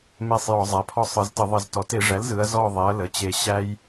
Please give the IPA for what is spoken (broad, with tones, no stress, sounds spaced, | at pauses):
m e˦˨ sˤ j ɔ˧˩˧ zˤ æ˩˧˩ pʰ ɔ˦ sˤ ɯ˩˧ z t ə˧˩˧ ðˤ ə˧˩˧ z t ɔ˩˧ t e˧˩˧ ʐ æ˩˥ l z ɯ˩˧ ɐ̯ z ɔ˦˨ ðˤ e˩˥ ɐ̯ l ə˩˧˩ t͡ɕ e˦˨ ɕ æ˦ j